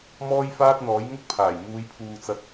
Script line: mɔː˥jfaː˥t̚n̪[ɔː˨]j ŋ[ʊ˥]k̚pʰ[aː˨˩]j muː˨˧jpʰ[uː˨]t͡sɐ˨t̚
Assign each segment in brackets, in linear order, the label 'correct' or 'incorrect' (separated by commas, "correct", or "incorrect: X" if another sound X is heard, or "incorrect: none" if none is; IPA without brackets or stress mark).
incorrect: ɔː˨˥, correct, correct, correct